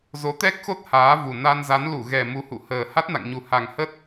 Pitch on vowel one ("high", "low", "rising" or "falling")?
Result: rising